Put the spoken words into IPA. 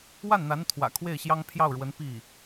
w a˥˩ n n̪ a˧˥ n t̪ʰ w ä̰˨˩ kʰ w e˥˩ ɪ̯ ɕ j ɑ˥ ŋ pʰ j ɑ˥˩ ʊ̯ ɻ w ə˧˥ n p i˥˩

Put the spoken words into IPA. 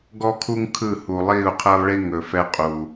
ɡ ɔ˦ kʰ u˦ ŋ kʰ ɯ˦˨ h u˨ lˠ iː˦˨ u̯ qʰ əː˦ lˠ ɭ i˦ ŋ ɵ˨ f ɛ˦ qʼ uː˨

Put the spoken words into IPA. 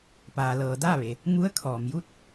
p aː˩ l ɤː˩ d aː˥˨ ʋ e˩ | ŋ u˧˥ ə̯ kʰ ɔː˩ m j u˥˨ t̚

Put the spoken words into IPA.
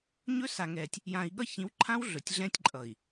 ɲ ɵ˦ s a˨ ŋ ɛː˨ tʲ | j ãː˨ i̯ ɠ ʌ˦ ç ĩ˨˦ w ǃʰ ã˦ w ɮ ɵ˨ tʲ ɮ ɛ̃˦ tʲ ǃʼ ʌ˨ i̯

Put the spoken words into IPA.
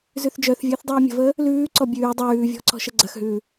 z ʉ θ d͡ʒ œ θ vʲ əː θ dˤ ʉː mʲ ə̤ v əː | l ʉː ǀ ɔ bʲ ʉː dˤ ʉː vʲ ɔ̤ ǀ ɔ̤ ʃ ə ɡ͡ǀ ɐ x ɦ ʉː

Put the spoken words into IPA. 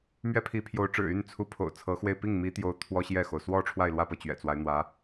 m ɥ ɛ˥ pʰ i˧˥ pʰ j o˧˥ ʊ̯ ʈ͡ʂ ɻ̩˨˩ y˥˩ n t͡sʰ u˧˥ pʰ o̰˨˩ ʊ̯ t͡sʰ ɤ˧˥ x w e˥˧ ɪ̯ p i˥˩ ŋ m i˧˥ t̪ j o˧˥ ʊ̯ t̪ʰ w ɔ˥ ɕ j ɛ˥˩ x o˩ ʊ̯ s w ɔ˥˧ ʈ͡ʂʰ w a˥˧ ɪ̯ l w ä˥˧ p ɤ˥˩ t͡ɕ ɥ ɛ̰˨˩ t͡s w a˦ ɪ̯ n̪ w ä˧˥

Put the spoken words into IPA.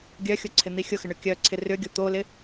ɡʲ œ xʲ ʊ ǀʰ ɪ n̪ i xʲ ʊ x ɪ ɳ ʏ kʲ œ ǀʰ ɪ r ʏ ɡʲ ʊ t̪ o l ɪ

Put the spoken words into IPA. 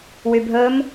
w y bʱ ɵ m

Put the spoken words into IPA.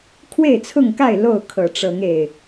kʰ w e˥˨ ɪ̯ t͡sʰ ʊ˥˨ ŋ k a˥˨ ɪ̯ l o˥˨ ʊ̯ kʰ ɤ˨˩ ʈ͡ʂ ɤ˨˦ ŋ e˨˩ ɪ̯

